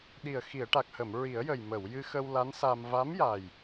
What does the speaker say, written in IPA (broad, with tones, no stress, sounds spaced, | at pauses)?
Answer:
ɗ i˨˩ ə̯ x i˨˩˨ ə̯ ʈ a˨˩ k̚ h ə˨˩˨ m ɹ i˨˩˦ ə̯ j ə˨˩ j m ə˨˩˨ w j ɨ˧ x ə˧ w l a˧˥ n s a˧ m v a˧˥ m j a˨˩ j